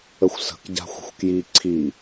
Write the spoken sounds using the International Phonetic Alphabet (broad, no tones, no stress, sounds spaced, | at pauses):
ə xʷ s ə̤ k ɟ a̤ xʷ ə̤ xʷ k j i ǀʰ i